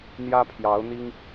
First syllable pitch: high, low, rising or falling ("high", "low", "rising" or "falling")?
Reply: high